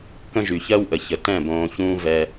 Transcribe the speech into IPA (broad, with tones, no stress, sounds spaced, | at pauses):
k ə̃˦ ʒ y˨ ç ɜ˦ w ʔ ə˨ ç ə˨ t ɛ̃˦˨ b õː˧ ç ũː˦ v ɛ˧